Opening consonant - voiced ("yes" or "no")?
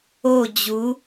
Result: yes